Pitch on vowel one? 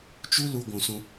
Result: high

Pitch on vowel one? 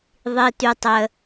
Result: high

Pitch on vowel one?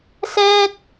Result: high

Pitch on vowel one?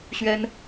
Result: high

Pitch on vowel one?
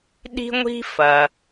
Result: high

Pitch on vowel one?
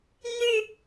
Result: falling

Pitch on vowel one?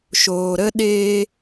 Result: low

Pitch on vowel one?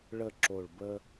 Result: falling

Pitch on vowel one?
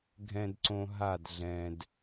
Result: low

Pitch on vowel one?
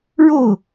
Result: falling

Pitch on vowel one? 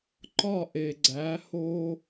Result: falling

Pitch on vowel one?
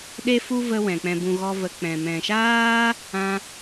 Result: high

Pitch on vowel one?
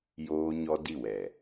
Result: high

